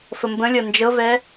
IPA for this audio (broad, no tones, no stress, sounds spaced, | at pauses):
f ə m b ə̃ lʲ ɤ n d͡ʒ ɤ v ɛ